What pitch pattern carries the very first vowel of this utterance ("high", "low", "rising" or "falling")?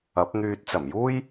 rising